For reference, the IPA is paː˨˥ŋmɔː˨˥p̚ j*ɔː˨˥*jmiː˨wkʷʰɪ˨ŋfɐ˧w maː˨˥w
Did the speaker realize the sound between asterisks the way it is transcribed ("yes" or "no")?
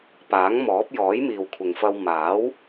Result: yes